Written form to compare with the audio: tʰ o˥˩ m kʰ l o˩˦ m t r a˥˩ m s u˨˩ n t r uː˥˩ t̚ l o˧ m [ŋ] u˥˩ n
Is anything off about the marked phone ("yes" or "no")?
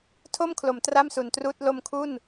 yes